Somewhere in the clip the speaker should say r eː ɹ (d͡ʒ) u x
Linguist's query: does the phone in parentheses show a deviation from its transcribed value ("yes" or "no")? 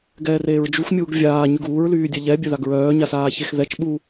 no